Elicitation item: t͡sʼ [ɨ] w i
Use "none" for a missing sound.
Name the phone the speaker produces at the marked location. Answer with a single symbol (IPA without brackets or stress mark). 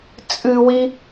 ɨ